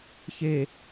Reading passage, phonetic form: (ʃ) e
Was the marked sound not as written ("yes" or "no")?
yes